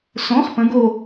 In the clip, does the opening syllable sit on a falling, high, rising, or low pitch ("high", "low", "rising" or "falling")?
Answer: rising